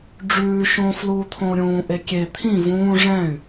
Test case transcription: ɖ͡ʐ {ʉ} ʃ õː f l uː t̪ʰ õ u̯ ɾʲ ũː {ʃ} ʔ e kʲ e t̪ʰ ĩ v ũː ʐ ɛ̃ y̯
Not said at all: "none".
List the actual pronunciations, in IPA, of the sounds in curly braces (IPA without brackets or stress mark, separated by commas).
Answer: ʉː, none